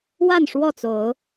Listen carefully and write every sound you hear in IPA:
wa˥˨nʂwɔ˥˨t͡so˨˦ʊ̯

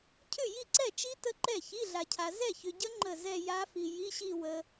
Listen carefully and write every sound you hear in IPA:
cʰʏ˥˩ji˥˩ǀɛ˥˩t͡ʃi˦˥ tə˦˥ǃɛ˥˩ çi˧˥˧ɮa˨cʰa˨ zɛ˥˩çʏ˨ɟə˦˥ ŋ͡ǃə˥˩zɛ˥˧ ja˦˥fi˨ ji˧˥˧ɕi˥˧ wə˦˥

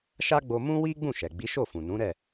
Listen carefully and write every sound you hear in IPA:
ʃa˦ɡ͡bo˧ mũ˦wi˦ ɡ͡bũ˦˨ʃɛ˨ ɡ͡bi˨˦ʃo˦˨fũ˨ nũ˨˦ ɾɛ˦˨

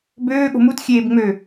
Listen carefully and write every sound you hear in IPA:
bøː ɠo̤mut xʲeːbŋ͡mø

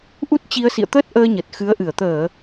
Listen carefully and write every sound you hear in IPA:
ʔu˦˥t̚t͡ɕi˧ə̯ sḭ˧˨ə̯t̪əː˦˥t̚ʔəː˧ ɲə˨˩t̚xɨ˨˦ə̯ʔɨ˧˩ə̯ t̪əː˧˩˨

